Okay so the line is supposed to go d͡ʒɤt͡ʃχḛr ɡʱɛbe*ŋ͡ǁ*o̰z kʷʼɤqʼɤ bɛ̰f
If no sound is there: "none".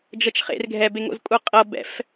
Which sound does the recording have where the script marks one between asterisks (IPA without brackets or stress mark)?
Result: ŋ